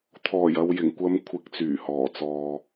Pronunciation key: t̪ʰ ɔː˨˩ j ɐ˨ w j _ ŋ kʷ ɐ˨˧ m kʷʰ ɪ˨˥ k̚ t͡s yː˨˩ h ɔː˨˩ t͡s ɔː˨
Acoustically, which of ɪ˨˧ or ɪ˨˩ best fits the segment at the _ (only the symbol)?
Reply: ɪ˨˩